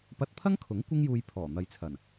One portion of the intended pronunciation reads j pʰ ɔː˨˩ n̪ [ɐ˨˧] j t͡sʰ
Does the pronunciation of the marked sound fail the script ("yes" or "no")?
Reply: no